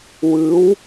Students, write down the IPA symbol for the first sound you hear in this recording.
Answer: w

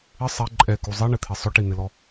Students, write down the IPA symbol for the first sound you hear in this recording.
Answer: ɪ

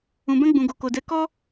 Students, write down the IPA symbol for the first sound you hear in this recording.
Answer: ũ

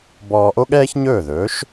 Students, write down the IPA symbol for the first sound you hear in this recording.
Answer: b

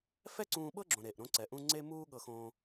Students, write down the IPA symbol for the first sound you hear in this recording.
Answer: f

